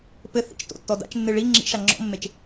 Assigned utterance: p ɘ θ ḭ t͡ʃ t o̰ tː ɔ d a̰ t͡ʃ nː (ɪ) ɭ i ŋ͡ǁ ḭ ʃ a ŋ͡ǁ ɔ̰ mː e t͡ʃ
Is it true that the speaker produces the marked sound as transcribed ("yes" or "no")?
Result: no